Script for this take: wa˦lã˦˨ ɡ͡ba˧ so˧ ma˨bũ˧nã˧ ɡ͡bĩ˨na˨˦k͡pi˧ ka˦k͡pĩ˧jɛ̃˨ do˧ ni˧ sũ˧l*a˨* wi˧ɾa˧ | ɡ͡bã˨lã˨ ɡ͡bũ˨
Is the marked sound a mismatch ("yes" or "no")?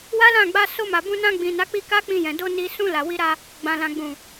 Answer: no